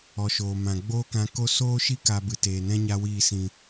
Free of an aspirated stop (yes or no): yes